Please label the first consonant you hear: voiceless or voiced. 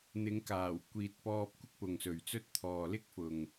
voiced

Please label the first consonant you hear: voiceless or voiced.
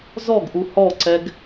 voiced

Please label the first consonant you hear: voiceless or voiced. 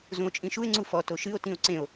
voiced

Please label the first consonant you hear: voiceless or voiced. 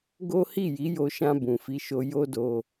voiced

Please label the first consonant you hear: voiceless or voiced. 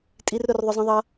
voiceless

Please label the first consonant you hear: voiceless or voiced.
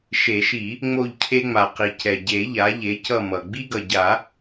voiceless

